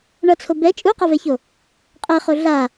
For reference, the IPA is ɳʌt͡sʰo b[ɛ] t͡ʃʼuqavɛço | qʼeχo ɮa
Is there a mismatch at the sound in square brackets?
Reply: no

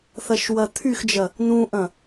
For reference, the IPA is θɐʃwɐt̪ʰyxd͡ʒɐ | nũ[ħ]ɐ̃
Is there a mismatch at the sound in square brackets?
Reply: yes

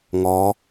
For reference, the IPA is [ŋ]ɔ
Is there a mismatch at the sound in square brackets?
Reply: no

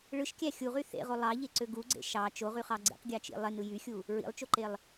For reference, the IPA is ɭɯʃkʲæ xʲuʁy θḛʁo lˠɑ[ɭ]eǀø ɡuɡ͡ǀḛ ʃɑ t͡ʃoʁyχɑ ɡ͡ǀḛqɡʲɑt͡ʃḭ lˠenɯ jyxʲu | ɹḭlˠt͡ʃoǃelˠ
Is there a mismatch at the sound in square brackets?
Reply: yes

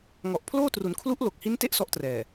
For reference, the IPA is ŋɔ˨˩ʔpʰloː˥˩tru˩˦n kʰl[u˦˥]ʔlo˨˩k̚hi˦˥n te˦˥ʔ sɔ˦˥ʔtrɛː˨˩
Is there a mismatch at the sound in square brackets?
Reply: no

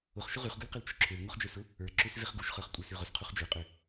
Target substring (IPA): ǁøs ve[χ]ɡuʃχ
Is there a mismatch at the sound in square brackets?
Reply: no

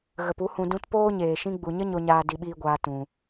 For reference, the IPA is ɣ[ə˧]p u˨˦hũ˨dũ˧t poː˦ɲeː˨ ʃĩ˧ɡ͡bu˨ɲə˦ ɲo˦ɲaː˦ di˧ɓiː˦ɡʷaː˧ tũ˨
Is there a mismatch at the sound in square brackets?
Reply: yes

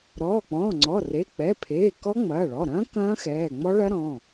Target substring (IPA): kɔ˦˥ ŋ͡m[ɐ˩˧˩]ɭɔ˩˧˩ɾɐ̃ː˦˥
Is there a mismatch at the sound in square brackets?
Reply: yes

